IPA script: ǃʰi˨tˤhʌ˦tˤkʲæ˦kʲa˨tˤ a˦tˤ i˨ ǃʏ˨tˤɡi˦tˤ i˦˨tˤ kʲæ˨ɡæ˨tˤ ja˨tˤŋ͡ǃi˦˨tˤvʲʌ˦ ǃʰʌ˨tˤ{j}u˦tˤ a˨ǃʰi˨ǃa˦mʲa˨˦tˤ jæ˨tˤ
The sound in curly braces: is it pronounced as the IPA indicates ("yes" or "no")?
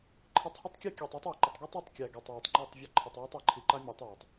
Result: yes